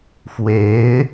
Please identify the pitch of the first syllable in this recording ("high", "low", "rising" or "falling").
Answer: rising